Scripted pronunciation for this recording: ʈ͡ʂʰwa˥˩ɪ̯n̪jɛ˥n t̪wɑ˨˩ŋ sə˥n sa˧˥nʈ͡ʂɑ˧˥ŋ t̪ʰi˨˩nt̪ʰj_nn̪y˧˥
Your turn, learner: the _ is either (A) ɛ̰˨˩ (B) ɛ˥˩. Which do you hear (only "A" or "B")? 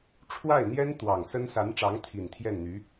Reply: B